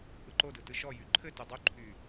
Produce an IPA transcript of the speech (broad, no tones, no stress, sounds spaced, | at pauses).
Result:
ʔ ɯ ǃ o d ɯ t ɯ ʃ ɔ j y ǃʰ ɘ t o dˤ o ǃʰ y